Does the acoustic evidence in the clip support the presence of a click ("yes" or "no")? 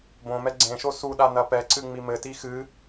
yes